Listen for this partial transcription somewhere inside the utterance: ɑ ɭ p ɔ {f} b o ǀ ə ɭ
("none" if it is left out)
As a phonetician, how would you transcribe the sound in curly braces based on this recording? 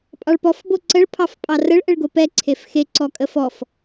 f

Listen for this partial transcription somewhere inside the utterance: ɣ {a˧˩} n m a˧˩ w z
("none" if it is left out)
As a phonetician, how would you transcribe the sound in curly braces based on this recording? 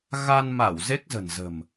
a˧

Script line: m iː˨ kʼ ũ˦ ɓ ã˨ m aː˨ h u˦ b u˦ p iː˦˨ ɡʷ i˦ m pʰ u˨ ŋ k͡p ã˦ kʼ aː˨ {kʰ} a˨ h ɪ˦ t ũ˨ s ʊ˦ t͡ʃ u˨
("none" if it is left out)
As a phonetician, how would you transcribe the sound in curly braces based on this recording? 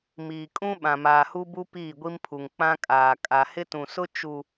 kʼ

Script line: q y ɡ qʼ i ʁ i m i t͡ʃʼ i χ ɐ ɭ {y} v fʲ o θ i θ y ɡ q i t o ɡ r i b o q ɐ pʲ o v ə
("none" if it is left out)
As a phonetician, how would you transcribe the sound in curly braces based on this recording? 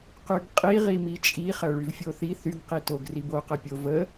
y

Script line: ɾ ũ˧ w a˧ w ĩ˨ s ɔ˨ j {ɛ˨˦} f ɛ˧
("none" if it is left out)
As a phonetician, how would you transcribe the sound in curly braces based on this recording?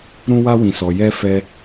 ɛ˧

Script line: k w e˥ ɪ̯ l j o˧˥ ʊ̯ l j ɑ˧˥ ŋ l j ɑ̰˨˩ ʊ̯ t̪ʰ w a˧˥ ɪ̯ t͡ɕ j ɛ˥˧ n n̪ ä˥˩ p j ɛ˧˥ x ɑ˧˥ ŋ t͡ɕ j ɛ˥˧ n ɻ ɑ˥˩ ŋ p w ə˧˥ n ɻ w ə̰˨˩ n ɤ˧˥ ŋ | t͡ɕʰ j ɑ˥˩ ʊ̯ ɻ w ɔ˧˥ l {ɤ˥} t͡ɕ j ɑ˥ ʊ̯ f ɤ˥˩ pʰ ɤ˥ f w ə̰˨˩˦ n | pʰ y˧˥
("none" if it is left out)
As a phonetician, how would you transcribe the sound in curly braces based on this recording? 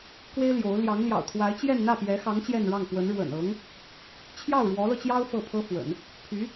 ɤ˧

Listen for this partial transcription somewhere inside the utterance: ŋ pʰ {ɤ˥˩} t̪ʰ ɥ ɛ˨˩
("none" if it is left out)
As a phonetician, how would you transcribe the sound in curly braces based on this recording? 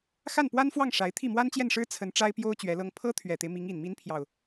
ɤ˥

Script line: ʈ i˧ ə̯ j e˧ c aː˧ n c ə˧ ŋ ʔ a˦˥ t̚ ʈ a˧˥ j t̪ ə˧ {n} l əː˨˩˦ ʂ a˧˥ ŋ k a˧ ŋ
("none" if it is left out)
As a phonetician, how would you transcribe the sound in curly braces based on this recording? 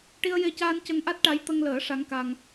ŋ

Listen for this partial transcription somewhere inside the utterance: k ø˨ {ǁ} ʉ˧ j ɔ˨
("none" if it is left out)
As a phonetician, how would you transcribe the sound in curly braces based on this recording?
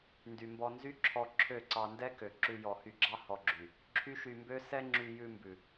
ǁ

